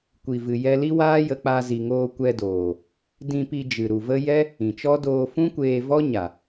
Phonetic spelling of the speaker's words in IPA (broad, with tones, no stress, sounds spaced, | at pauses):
kʷ i˨ v ɨ˨ j ɛ˧ l i˦ w aː˦ j ə˧ k͡p a˧ z i˨ ŋ oː˧ kʷ ɛ˧ d oː˨ | d ĩ˧ p i˧ d͡ʒ ɨ˨ ɾ u˨ v ə˦ j ɛ˦ | ĩ˨ t͡ʃ ɔ˦ d oː˧ f ũ˦ kʷ eː˧ v ɔ˦ ɲ a˨